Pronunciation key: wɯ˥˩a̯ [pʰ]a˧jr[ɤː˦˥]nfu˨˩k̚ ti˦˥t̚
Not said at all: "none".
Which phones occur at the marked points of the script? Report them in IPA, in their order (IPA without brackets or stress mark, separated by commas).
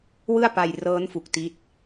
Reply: p, ɤː˦˥